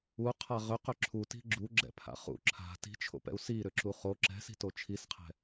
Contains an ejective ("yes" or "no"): no